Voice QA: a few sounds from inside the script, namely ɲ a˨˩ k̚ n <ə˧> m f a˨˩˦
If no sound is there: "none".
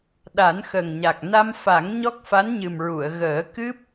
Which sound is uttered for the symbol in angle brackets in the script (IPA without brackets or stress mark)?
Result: a˧